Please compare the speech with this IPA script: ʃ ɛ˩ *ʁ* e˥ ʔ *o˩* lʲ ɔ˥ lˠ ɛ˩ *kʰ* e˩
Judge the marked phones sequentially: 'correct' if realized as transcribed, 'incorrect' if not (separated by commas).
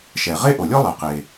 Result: correct, correct, incorrect